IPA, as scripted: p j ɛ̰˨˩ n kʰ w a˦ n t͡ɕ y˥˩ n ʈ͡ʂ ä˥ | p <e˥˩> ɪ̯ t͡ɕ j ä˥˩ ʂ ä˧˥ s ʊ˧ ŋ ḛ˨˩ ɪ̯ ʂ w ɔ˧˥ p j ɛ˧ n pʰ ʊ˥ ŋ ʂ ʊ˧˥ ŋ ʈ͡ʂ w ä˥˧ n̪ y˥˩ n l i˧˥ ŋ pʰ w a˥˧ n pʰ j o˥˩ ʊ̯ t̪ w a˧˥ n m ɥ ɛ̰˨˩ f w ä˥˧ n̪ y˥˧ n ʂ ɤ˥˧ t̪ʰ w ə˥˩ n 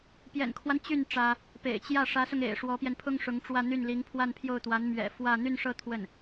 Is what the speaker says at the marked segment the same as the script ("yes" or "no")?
no